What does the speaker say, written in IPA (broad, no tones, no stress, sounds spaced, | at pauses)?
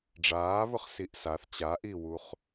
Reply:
ɖ͡ʐ aː β ʊ χ s i ʔ s a θ t͡ɕ a ʔ i w u χ